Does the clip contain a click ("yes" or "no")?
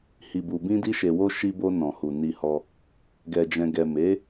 no